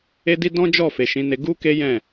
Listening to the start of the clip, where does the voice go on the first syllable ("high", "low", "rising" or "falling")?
high